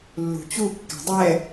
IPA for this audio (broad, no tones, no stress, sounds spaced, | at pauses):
lː ṳ t͡ɕ u kː æ̤ dˤ ɛ